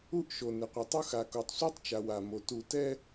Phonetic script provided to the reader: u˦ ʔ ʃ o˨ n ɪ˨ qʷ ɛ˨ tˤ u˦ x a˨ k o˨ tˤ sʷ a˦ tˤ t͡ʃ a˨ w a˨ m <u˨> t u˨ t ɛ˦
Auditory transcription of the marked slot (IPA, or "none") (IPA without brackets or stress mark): o˨